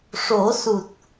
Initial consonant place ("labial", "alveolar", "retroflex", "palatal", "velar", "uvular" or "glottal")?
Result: retroflex